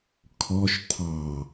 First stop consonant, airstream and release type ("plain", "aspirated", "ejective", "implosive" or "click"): aspirated